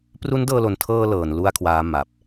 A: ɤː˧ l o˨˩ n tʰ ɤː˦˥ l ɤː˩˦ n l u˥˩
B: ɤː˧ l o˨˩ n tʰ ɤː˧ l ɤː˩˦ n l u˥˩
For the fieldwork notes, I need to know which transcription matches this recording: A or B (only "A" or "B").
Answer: B